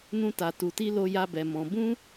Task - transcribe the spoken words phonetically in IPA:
n ũ˦ t a˧ t u˧ t i˦ l o˦ j a˦ b ɛ˧ m ɔ̃˧ b ũ˦

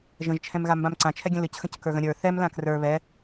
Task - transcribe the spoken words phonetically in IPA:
ʒ ə̃ ʒ t͡ʃʰ ɛ̃ m ɣ a m b ã m ǀ ã t͡ʃʰ ɛ ɡʲ ə̃ l ɨ c x ə̃ c k ə˞ ɣ ə̃ ɾʲ ə˞ θ ɛ m l ã k r ə˞ β ɛ

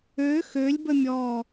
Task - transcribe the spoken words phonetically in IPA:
ø x ø lʲ b ə mʲ ɔ

